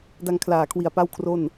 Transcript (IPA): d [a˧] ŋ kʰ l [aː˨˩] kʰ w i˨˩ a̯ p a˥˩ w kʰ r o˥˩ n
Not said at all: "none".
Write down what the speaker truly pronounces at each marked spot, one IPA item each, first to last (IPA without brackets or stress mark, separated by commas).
a˧, aː˨˩